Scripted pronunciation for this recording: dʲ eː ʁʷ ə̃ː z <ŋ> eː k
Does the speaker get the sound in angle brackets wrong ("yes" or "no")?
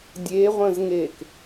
no